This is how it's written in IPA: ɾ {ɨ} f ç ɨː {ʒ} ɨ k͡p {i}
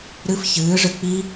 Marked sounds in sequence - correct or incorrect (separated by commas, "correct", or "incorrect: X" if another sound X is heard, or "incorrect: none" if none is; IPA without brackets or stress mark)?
correct, incorrect: ʐ, correct